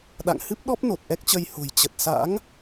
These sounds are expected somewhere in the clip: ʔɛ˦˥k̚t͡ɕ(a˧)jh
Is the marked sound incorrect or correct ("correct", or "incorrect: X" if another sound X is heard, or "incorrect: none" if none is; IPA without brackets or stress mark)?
incorrect: ə˧